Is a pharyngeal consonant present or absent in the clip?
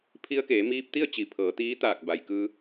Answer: absent